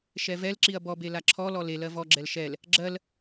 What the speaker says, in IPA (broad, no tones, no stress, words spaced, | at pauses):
ʃɛvɛlǁiɐ̯ bɔbe laǁʰɔlɔ lelɜ vɔɡ͡ǁɛl ʃɛl | ɡ͡ǁɜl